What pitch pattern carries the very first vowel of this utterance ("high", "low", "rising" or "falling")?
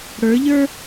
rising